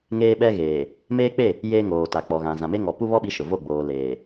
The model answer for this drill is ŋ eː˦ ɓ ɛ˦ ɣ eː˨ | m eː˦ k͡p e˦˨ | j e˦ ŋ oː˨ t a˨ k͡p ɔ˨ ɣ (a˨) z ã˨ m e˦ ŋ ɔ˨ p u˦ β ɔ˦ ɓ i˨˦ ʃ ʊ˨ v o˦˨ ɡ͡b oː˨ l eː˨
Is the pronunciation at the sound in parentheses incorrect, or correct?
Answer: incorrect